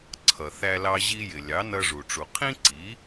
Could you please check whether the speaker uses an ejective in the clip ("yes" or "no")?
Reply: no